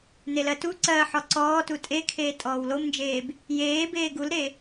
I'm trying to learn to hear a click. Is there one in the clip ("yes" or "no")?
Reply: yes